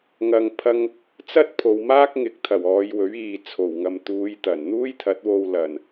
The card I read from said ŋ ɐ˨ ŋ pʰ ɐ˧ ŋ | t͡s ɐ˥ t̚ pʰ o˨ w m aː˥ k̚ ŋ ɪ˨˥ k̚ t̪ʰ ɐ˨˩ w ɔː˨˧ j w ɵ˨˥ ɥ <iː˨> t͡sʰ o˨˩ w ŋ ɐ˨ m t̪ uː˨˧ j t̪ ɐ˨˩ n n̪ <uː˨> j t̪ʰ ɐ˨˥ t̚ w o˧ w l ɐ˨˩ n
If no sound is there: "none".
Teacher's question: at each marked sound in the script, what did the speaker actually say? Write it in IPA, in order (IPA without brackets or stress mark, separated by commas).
iː˨, uː˥